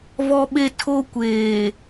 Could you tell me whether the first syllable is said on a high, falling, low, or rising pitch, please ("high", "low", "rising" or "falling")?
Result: high